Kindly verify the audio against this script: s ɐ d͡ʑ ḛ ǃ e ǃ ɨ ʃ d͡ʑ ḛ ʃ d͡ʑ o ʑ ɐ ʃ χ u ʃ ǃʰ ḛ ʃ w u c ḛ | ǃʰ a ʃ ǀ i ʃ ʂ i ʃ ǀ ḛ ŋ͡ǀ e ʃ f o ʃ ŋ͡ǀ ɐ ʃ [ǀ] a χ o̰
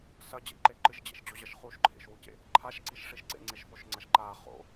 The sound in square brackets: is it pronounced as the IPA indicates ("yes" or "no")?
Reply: no